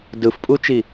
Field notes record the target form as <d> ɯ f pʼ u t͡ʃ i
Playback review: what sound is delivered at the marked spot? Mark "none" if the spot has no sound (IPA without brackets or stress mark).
d